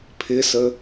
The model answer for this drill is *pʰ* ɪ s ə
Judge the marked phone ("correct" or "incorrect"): correct